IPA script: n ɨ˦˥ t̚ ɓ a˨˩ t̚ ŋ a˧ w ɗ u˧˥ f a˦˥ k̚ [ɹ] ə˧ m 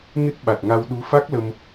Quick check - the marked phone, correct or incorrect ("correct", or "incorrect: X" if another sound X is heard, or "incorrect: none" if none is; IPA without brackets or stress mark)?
incorrect: l